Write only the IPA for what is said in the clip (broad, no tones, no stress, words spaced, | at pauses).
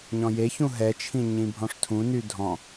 ɲɔ̃jeçũ ɦɛt͡ʃʰĩ ɲĩbʱɔ̃ʂtʰũny dʱɔ̃